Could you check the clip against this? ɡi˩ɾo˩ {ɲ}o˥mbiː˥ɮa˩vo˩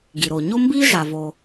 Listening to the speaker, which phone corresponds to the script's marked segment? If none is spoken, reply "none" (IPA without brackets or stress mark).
ɲ